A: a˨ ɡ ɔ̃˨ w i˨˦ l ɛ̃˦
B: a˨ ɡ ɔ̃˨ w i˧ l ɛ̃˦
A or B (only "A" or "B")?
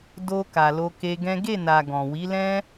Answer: A